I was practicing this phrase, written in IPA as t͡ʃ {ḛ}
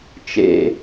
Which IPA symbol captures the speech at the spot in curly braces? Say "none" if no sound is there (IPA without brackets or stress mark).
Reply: ḛ